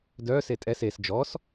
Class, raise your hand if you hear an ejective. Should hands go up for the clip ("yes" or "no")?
yes